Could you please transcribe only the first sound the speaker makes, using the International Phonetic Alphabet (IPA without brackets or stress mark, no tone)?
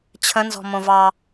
t͡ɕʰ